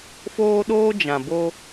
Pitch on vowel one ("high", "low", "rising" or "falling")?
high